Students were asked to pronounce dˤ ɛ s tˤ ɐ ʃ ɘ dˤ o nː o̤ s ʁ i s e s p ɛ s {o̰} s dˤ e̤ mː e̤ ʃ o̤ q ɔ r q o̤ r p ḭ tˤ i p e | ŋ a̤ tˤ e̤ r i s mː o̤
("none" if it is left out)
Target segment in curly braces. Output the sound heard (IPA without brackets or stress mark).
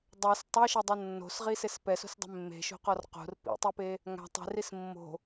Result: o̤